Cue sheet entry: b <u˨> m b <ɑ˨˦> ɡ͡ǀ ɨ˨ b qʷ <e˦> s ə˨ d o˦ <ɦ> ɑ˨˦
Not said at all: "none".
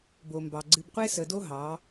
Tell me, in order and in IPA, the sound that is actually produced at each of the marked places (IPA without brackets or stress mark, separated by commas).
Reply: o˨, ɑ˨, e˦, ɦ